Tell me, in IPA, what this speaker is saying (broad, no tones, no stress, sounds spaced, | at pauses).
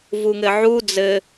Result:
v u ŋ ɘ ʕ u d͡z ɘ